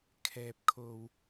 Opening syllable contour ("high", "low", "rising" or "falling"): low